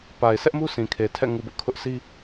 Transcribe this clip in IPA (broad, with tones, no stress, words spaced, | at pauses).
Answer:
pa˨ɪ̯ sɛ˦ʔmu˦ sʰĩ˨kʰe˨ tʰɛ̰˦˨ŋu˨bʊ˦ʔkʰʊ˦ʔ si˦